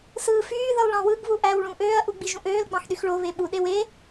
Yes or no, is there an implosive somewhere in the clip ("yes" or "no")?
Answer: yes